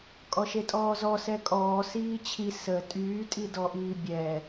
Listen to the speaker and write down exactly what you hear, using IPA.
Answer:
kʼɔʃetʼɔːzɔ sɛkʼɔː siːt͡ɕʰi sə tʼyːtʼidɔʔiː bʲɛ

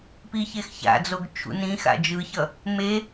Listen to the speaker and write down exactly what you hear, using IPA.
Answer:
piçexça̰d͡zoɡ t͡ʃʰṵnĩxa̰ d͡ʒɯçʌ | me

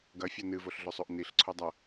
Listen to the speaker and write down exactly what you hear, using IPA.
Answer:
ɡɐfʲɐ nɨvoɬɮɵsˤoʔ niɬ ǀʰodˤɐ

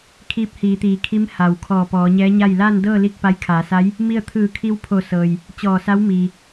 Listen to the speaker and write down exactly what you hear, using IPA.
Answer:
kʰiː˧p̚hiː˩˧t̪iː˩˧kʰi˧˥m ha˩w kʰɔː˧˩pɔː˩˧ɲɛː˧˥ɲa˥˨j laː˥˨ndɤː˥˨ li˥˨k̚pa˧˥jkʰaː˩˧sa˧˥j | mi˥˨ə̯ t̪ʰɯː˧˩ kʰi˧wpʰo˧˩ sɤː˩j | t͡ɕɔː˧˩sa˧˥wmiː˩

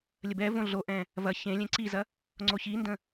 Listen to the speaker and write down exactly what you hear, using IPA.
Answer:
lʲəbɛvõ ɮoʔɛ̃ | vɐ çẽ lʲẽǀizɐ | ŋ͡ǀoçində̃

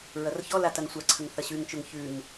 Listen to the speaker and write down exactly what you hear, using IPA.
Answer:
ɹɐrçɔla tɐŋsʷaǀʰɐŋ θɐɕʉŋt͡ʃoŋ çʉŋ

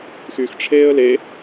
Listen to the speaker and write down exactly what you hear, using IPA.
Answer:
xyxʈ͡ʂʰeːə̯ le

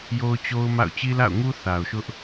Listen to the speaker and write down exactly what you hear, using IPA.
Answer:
jo˦ʊ̯t͡ɕo˦ʊ̯ma̰˦˨ʊ̯ t͡ɕi˦la̰˦˨ʊ̯ŋu˦ θa˨ʊ̯ʃʊ˦ʔ

